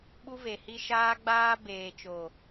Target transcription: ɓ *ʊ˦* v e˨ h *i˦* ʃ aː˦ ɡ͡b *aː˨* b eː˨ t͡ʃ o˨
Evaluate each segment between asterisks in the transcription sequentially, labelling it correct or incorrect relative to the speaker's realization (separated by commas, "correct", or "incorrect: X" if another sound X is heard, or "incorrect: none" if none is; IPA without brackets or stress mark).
incorrect: u˦, correct, incorrect: aː˦